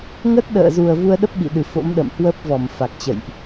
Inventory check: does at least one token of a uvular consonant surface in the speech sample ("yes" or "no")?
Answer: no